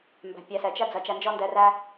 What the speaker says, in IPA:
m b æ̤˨ pʲ æ˨ s ɛ˨ t͡ʃ ɐ˦ d͡z ɐ˨˦ t͡ʃ æ˧ n d͡ʒ ɔ˦ n d ɛ˧ r æ˧

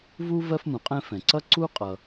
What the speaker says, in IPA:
v u˥ v ɜ˥ f m ũ˩ qʼ ɛ̃˥ f ɛ̃˩ ǀ ʌ˥ ǀ u˥ qʼ ʌ˩

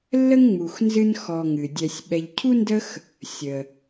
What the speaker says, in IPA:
lː ə˥ ŋ ŋ͡m u˨ x n z ɨ˦ n x ɔ˨ ŋ ɨ˩ dʲ ɛ˨ sʲ ɓ ɛ˨ ʎ cʰ u˥ n d ə˦ x | sʲ ə˩

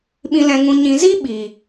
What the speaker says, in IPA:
ɓ ĩ˨ l ɛ̃˨ ŋ ũ˨ ɲ ĩ˨ z i˦ ɓ i˨

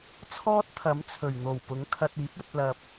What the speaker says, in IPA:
t͡sʰ ɔː˥ t̚ t̪ʰ ɐ˨˥ m t͡sʰ ɵ˨˩ ɥ n̪ o˨˩ w p ʊ˨˥ ŋ kʰ ɐ˧ t̚ iː˨˥ p̚ ɵ˧ t̚ l ɐ˨ p̚

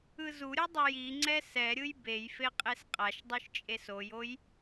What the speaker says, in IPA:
ɯ z u ɾʲ ɯ dˤ ɛ j i ŋ͡ǀ ɛ s ɛ ɾʲ ɯ j b e j f e qʼ e s qʼ a ʃ dˤ u ʃ t͡ʃʼ e s o j o j

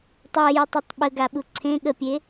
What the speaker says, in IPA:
tˤ ɛ j u tˤ ɛ tˤ ɓ ə ɡ a ɓ u ǀʰ ẽ ɠ ə pʲ e

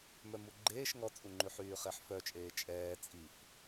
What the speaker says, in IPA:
m œ m u ɡ͡ǃ eː ʃ ŋ ɔ t͡sʼ u ŋ͡ǃ y ħ yː χ e ħ f œ t͡ʃʼ eː t͡ʃʼ ɛː t͡sʼ i f

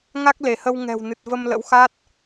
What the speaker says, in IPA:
ŋ a˦˥ k̚ l e˧˩ h ə˧ w ŋ ɛ̤˨˩ w n ɨ˨˩ t̚ v ə˧ m l ə̰˧˥ w x a˦˥ t̚

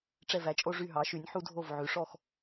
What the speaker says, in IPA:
ʈ͡ʂ ɛ˧˩ v æ˧ t͡ʃʼ o˧ ʐ y˧˩ ɦ ɑ˩˧ ʃ y˩˧ nʲ ħ u˧ dʱ o˧˩ v ʕ ʉ˩˧ ʂ ɔ˧˩ x

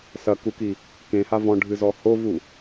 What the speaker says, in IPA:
s ɐ k u k i | k ẽ h a v ɔ̃ ɖʱ ɨ z ɔ h o v u

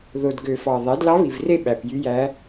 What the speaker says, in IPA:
ð o˨˩ d ɡ ø˨˩˦ f ɑ˨˩ ðˤ æ˩˥ d l ɑ˧˥ β i˨˩ v r e˥˩ ɓ æ˨˩ p j y˧˥ j æ˧˥

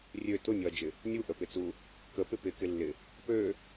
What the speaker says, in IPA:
rʲ ø t ʊ nʲ ɔ ɐ̯ d͡ʒ ɪ | nʲ u ʔ ə p ɪ t͡s u | k ə p ɪ p ɪ k ɪ lː ɪ | p ø

